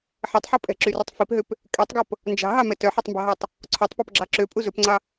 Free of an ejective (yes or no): no